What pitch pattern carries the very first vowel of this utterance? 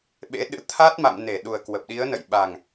rising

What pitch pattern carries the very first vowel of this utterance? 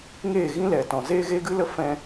falling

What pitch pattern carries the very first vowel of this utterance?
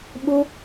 high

